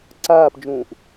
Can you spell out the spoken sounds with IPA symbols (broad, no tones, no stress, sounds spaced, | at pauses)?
ǀ aː p d͡ʒ ũː ʔ